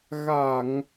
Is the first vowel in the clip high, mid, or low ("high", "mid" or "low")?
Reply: low